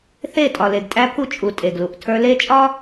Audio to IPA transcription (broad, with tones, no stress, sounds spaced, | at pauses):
θ e˦˨ tʼ ɒ˨ l e˨ ɡ tʼ æ˦ pʰ u˦ t͡ʃʼ u˨ tʼ e˨ ɡ l u˨ ʔ tʰ ə˞˦ l e˦ t͡ʃʼ ɒ˦